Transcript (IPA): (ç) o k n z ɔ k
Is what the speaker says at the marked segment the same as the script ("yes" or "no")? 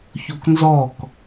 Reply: yes